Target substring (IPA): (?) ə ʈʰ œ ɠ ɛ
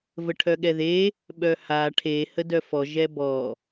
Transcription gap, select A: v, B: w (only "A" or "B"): A